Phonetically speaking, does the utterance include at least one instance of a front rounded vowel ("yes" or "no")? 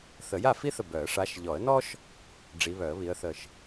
yes